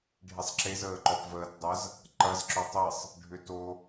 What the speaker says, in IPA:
ɖʱisˤǁez əːǃɔpvəːt dˤɐz | ǃɐz ǁʏtˤisˤ | ɖʱʏto

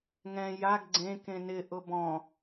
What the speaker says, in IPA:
ŋɛ̃ jaɡ ɡ͡ǀẽ kẽnɪ ʔʊbɔ̃

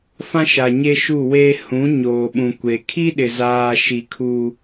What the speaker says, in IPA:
fã˦ʃa˨ ɲe˦ʃu˦˨weː˦ hũ˨˦ ɲoː˨ɓũ˨kʷe˨ kʰi˦ɗɪ˨zaː˨ ʃi˨kʰu˨

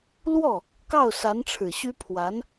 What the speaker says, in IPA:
lwɔ˥˩ | kɑ˥˩ʊ̯sa˧˥nʈ͡ʂʰɻ̩˨˩ɕy˥ pʰwa˧˥n

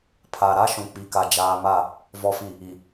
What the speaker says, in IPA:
pʰa˨ɾa˦ ʃũ˨k͡pi˨ka˨ d͡ʒaː˦ ma˦˨ | vɔ˨fi˨ | i˨

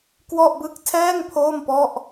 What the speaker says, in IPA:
kwɔ˥˩ʔbɯ˥˩k̚ tʰɛː˥˩ŋ pʰoː˥˩mpɔ˥˩ʔ

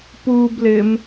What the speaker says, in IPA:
puːblɪːm

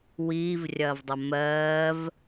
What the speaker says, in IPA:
wiːvrʲɐːvdˤɐ mɜːv

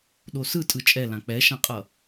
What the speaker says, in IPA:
ɗosɯtʼɯ t͡ʃʼɛlã k͡pɛʃãqʼʌ

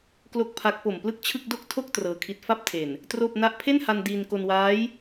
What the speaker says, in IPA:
klo˥˩k̚pʰa˦˥k̚ po˨˩mplɯ˥˩k̚t͡ɕʰɯ˥˩k̚ do˥˩k̚tʰo˥˩k̚ trɤː˧kʰi˦˥t̚ fa˥˩p̚tʰe˨˩n | troː˥˩p̚na˥˩ʔ pʰe˥˩nha˧n diː˧nko˧nwaː˦˥j

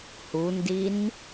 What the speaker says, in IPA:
hundin

